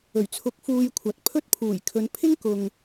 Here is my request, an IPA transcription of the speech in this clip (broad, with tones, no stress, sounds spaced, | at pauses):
ɵ˨˩ ɥ t͡sʰ ʊ˨˥ k̚ f uː˧ j kʷʰ ɐ˨ t̚ pʰ ɵ˥ t̚ pʰ uː˨˩ j kʰ ɵ˨˧ n pʰ ɪ˥ ŋ k ʊ˨ ŋ